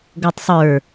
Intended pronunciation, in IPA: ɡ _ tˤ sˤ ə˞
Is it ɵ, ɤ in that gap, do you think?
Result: ɤ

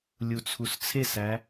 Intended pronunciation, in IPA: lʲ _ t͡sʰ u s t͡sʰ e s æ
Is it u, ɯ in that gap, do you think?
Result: u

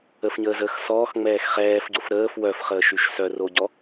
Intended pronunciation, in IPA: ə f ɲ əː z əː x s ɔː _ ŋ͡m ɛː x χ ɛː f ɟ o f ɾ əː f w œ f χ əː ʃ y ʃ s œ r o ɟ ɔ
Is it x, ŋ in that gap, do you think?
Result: x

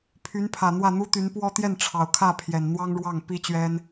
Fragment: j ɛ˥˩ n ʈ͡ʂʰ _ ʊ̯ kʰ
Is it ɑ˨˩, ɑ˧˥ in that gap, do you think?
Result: ɑ˨˩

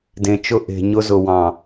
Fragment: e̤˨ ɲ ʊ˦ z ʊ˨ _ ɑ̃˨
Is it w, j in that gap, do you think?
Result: w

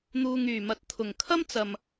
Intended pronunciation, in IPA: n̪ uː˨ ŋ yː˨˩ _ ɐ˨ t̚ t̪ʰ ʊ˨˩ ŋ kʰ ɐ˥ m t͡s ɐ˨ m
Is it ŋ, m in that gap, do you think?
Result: m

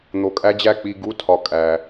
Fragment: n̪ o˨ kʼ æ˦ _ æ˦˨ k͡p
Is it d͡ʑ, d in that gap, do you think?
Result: d͡ʑ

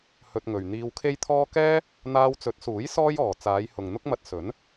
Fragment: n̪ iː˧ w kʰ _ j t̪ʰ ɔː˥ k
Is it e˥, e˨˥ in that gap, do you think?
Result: e˥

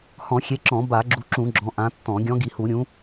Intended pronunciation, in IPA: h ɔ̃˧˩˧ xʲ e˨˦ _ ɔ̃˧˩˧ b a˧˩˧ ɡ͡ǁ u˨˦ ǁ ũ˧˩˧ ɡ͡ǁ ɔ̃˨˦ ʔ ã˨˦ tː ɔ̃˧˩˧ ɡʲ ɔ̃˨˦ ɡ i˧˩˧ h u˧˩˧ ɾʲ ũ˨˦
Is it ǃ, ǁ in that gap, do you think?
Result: ǁ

